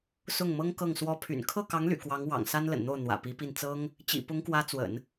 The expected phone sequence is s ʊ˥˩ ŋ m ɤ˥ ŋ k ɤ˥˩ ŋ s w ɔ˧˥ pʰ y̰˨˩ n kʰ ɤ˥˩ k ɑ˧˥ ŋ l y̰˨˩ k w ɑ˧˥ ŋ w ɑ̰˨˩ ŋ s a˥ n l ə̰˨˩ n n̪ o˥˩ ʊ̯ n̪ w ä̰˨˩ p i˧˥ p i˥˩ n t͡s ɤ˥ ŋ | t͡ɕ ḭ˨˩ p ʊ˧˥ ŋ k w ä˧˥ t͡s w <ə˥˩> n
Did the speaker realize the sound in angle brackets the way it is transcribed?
no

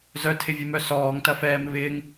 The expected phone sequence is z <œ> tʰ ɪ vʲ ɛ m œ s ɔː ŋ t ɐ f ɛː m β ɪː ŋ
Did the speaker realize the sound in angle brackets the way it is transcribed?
yes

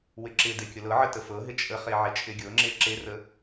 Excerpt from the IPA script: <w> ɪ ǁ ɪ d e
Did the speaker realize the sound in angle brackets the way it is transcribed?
yes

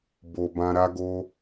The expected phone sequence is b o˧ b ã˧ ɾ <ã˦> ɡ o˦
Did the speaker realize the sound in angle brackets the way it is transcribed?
no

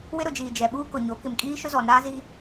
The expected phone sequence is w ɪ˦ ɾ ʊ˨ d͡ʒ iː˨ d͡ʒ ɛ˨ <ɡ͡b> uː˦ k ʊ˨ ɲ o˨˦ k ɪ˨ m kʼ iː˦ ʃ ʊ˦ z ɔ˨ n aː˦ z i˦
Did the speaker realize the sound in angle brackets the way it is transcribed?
no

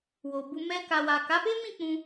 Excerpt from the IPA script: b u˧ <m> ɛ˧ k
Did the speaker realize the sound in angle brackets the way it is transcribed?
yes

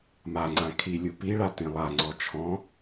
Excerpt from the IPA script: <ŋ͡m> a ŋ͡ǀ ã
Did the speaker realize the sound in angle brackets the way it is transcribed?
no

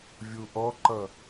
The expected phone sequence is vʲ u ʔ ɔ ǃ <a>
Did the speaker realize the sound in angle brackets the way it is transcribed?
no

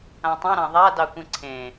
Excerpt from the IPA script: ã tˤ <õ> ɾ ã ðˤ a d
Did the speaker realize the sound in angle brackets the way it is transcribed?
no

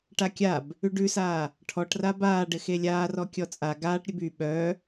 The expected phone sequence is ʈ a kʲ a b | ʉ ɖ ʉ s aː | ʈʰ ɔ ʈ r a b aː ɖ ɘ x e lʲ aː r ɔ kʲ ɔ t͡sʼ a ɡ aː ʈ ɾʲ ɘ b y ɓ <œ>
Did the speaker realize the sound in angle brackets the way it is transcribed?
yes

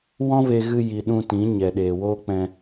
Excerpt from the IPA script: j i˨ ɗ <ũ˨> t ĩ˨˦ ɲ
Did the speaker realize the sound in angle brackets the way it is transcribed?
no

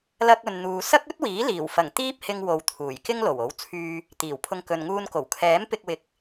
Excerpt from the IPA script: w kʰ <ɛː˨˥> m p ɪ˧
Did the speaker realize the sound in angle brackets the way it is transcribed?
yes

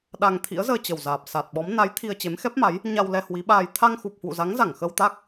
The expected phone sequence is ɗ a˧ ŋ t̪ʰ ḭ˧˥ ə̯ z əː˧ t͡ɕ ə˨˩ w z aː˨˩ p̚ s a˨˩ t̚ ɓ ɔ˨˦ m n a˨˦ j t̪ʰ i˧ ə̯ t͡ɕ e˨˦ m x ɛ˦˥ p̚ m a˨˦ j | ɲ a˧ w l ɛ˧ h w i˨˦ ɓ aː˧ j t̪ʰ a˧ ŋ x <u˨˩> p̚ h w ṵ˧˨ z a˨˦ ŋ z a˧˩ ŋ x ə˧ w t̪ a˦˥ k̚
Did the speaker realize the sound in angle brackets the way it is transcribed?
yes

